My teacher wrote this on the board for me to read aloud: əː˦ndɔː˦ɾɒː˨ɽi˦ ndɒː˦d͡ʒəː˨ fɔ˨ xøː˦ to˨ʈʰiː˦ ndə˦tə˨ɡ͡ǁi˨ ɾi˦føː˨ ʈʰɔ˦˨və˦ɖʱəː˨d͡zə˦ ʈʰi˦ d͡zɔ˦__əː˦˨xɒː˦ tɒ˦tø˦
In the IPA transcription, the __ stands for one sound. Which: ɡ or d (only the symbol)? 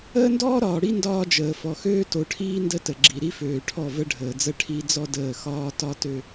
d